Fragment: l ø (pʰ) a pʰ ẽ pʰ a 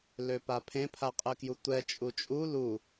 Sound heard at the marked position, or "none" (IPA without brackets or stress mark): p